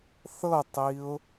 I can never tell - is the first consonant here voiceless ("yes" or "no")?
yes